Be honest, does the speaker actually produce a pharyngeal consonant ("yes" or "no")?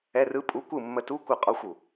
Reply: no